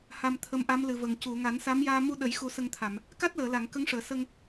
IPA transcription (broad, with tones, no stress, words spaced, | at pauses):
ha˧mt̪ʰə˧˥mʔa˧˥m lɨ˨˩və˨˩ŋ cu˨˩˨ ŋa˨˩˦nsa˧˥mjaː˧ mu˧ ɗə˨˩˦jxu˨˩˦ sə˧ŋt̪ʰa˨˩˨m | ka˦˥t̚ləː˨˩˨la˨˩˨ŋ kə˧˥ŋʂəː˨˩˨sə˧ŋ